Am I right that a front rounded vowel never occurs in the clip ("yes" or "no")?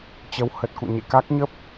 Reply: yes